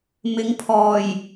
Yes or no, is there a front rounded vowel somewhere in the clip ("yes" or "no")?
no